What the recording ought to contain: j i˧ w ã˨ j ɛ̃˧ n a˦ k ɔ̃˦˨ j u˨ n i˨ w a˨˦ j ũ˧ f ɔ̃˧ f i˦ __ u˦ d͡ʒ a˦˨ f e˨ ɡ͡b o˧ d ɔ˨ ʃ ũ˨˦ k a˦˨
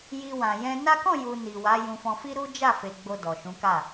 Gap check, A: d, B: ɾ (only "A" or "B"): B